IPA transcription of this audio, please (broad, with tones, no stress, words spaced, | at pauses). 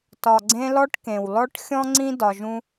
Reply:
tɒ˨ɡ͡ǀẽ˧lɔ˧ʈ kẽ˨wlɔ˦ʈxʲɔ̃˦ŋ͡ǀĩ˦ dɒ˧ʒũ˦